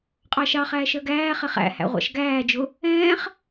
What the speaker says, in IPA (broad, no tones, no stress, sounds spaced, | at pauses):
qʼ ɑ ʃ ɑ χ æː ʃ ɜ ɡ æː χ ɛ χ æ̰ h æ̰ ʁʷ ɑ̰ ʃ ɡ æː d͡ʒ ʊ | ɛ̃ː χ